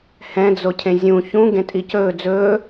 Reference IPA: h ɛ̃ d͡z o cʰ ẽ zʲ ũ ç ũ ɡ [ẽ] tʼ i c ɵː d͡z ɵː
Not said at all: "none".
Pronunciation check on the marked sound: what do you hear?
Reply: ẽ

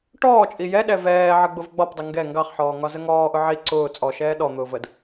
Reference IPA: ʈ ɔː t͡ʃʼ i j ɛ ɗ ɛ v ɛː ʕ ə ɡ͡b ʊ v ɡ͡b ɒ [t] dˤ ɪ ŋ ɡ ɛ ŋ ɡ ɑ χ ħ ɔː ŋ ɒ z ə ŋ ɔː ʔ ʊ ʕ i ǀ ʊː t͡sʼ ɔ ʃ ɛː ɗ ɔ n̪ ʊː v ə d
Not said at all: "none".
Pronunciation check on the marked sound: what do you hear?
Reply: p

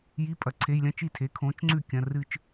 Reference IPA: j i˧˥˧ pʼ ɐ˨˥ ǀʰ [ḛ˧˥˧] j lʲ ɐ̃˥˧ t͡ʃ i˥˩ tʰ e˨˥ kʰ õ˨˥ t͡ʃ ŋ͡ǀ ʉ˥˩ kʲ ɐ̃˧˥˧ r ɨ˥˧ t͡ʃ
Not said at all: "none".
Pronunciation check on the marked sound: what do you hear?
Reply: e˧˥˧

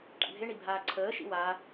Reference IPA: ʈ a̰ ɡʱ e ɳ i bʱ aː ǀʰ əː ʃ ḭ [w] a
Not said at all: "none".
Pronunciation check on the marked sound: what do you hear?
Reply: w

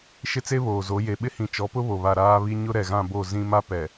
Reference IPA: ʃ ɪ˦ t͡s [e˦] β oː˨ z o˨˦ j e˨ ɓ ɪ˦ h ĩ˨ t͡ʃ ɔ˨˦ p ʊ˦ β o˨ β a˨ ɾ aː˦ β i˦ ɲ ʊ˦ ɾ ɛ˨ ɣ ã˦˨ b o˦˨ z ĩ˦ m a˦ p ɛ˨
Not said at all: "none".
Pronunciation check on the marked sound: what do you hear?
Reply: e˦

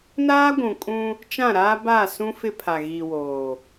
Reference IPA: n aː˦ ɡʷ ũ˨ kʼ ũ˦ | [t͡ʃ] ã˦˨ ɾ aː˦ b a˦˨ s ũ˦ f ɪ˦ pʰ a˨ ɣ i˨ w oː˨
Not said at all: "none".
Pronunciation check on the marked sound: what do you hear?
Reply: t͡ʃ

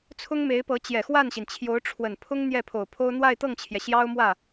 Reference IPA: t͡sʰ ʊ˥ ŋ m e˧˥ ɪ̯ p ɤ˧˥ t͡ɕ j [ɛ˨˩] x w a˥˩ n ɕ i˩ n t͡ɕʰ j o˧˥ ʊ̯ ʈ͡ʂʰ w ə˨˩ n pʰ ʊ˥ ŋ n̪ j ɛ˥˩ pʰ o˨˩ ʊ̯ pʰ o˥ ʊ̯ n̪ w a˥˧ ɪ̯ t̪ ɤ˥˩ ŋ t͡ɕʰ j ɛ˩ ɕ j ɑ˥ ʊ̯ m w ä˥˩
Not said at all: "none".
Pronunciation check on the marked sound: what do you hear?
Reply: ɛ˨˩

